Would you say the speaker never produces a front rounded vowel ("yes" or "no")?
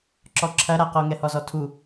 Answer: yes